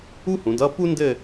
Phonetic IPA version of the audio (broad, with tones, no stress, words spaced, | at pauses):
u˥hũ˩˧dʌ˥˧ pu˥ ndɘ˥˧